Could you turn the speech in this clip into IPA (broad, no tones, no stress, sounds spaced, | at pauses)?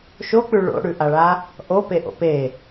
ʃ o k͡p ʉ ɭ o̰ ɽ ʉ ʔ a ɭ a | ʔ o p e ʔ o̰ p e